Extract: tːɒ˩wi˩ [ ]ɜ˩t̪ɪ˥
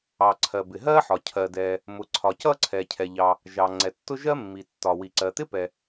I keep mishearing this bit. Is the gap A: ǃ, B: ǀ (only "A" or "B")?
B